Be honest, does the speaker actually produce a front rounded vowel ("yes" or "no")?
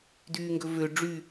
yes